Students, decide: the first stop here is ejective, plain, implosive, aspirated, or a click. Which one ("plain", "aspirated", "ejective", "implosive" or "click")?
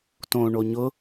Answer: plain